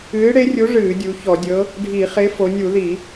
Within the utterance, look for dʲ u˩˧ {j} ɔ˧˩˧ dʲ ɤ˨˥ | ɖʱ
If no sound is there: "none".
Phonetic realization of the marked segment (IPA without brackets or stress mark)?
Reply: ç